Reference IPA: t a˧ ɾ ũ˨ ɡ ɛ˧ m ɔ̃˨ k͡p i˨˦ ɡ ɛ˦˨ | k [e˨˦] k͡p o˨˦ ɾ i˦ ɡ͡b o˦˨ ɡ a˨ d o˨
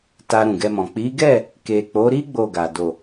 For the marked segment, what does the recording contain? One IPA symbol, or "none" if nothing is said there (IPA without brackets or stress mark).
e˨